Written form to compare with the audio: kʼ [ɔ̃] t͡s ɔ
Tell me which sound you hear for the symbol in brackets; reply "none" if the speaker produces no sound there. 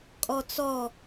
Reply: ɔ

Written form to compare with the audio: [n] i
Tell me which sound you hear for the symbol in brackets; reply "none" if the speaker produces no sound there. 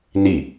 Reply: n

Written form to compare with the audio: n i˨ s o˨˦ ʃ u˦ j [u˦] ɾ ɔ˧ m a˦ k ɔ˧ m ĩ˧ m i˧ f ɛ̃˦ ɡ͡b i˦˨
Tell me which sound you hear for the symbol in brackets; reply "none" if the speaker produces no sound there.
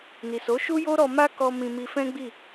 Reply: o˦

